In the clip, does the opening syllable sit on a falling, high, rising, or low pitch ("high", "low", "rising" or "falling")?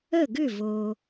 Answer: falling